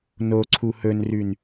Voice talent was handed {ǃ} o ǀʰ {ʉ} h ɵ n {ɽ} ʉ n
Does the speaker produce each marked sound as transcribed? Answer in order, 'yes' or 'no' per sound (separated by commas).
no, no, no